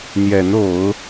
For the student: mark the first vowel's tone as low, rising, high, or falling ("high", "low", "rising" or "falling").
rising